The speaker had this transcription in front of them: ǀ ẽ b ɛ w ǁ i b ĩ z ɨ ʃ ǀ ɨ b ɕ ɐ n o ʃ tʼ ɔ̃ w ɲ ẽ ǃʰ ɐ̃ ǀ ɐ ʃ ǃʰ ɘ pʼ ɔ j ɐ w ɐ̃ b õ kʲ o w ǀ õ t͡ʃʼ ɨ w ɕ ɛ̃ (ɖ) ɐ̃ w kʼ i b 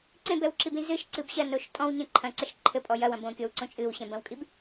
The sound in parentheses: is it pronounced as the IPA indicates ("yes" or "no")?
no